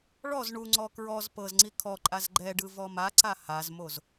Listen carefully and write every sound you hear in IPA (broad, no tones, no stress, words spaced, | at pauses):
ɭɔz ɳuŋ͡ǀɔ kɹɔz pɤzŋ͡ǀi kʰɔǃʼaz ɡ͡ǃɛɖɯ vɔmaǀa hazmoz